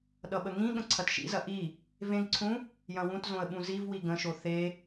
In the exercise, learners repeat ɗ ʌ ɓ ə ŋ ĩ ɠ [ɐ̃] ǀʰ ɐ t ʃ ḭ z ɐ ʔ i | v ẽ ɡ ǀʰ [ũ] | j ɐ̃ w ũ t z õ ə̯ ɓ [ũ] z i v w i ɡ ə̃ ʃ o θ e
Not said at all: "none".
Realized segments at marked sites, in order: ə̃, ũ, ũ

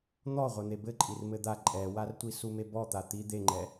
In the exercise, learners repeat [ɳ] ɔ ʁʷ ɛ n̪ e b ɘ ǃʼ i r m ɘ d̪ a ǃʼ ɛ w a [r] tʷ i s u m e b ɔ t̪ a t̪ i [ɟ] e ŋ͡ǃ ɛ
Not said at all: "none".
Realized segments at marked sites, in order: n̪, r, d̪

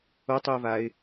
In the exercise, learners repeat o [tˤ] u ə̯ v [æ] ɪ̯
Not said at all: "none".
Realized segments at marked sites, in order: tˤ, a

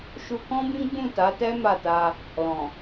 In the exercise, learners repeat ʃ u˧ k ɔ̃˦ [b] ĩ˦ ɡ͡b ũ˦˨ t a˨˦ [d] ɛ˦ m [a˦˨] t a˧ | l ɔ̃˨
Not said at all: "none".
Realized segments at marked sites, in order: b, t, a˦˨

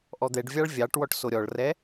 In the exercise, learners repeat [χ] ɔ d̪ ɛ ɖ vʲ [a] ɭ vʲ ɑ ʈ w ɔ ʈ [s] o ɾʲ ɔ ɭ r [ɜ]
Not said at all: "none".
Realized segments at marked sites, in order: ʔ, ɑ, s, ɛ

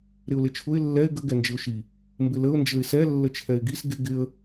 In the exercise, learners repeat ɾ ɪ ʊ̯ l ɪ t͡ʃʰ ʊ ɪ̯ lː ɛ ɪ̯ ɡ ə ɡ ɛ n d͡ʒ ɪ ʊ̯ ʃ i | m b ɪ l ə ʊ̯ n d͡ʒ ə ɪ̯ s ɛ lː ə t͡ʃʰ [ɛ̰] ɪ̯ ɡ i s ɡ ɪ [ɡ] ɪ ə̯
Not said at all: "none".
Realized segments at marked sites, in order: ɛ, ɡ

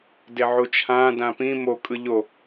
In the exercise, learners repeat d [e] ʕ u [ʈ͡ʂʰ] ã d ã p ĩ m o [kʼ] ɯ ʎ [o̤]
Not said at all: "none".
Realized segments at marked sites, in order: e, t͡ʃʰ, kʼ, o

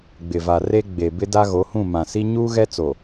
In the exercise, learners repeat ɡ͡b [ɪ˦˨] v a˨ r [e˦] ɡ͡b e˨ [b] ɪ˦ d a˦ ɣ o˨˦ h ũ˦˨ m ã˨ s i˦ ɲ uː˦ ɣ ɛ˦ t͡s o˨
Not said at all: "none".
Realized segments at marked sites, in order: ɪ˨, e˦, b

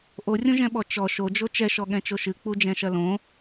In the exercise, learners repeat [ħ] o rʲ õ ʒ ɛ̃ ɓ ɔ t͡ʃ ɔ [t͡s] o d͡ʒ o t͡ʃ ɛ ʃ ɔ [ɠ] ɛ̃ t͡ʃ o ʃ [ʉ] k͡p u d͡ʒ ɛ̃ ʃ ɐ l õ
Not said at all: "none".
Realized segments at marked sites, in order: ʔ, ʃ, ɠ, ɨ

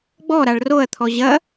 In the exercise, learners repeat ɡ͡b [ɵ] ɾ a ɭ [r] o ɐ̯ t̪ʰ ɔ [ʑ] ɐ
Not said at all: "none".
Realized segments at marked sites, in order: ɔ, r, ʑ

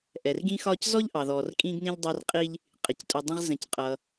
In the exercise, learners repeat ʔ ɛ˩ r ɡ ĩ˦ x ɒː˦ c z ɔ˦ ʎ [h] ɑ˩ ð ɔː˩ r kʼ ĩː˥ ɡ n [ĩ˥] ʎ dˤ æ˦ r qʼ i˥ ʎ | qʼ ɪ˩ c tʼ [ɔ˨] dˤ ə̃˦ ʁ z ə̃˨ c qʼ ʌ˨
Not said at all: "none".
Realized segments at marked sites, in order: ʔ, ĩ˥, ʊ˨

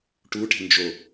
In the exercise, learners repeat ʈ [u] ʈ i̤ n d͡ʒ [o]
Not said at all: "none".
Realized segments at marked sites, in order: u, o

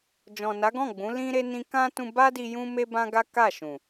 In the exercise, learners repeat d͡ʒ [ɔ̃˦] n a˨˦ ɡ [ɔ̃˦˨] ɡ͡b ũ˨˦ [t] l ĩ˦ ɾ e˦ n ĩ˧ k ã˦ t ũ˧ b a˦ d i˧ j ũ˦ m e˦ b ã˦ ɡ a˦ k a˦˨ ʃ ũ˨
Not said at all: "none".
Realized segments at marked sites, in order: ɔ̃˨, ɔ̃˦˨, none

